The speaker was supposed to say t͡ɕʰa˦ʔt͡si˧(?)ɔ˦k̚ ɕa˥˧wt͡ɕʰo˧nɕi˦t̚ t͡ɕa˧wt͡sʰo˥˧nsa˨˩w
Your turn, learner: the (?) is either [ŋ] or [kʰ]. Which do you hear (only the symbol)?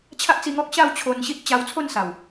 ŋ